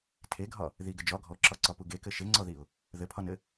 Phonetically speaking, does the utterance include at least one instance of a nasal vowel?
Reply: no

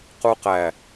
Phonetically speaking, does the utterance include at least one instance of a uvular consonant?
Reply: yes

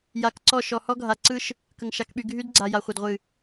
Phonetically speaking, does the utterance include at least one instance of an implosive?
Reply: yes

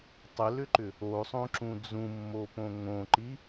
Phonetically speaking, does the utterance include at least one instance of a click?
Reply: yes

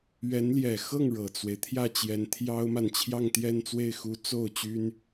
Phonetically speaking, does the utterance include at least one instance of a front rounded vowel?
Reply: yes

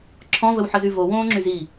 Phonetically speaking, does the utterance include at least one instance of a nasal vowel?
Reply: yes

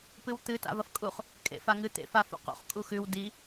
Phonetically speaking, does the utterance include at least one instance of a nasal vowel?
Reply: no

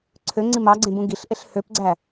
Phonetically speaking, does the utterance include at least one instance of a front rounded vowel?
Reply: yes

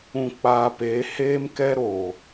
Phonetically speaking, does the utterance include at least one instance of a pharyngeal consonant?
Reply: no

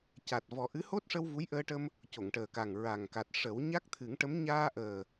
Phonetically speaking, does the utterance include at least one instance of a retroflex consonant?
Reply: yes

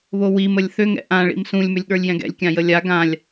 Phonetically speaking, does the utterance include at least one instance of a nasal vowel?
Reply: yes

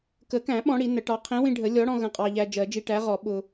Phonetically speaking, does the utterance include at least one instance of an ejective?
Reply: yes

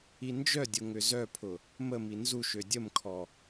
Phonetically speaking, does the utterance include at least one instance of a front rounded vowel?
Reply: yes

